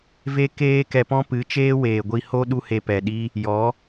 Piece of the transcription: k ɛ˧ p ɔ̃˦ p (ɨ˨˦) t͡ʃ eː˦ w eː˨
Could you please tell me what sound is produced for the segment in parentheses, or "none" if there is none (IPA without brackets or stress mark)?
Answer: ɨ˨˦